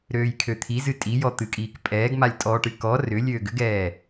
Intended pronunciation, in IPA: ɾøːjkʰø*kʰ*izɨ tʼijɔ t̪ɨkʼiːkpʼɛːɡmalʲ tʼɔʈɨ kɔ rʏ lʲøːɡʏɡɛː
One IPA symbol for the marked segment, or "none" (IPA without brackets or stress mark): t̪ʰ